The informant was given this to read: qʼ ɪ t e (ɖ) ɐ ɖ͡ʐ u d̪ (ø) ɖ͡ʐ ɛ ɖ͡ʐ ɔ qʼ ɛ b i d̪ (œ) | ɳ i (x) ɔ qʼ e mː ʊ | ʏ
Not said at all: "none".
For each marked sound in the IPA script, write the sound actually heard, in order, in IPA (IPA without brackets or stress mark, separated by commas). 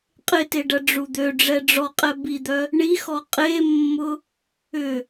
ɖ, ø, œ, x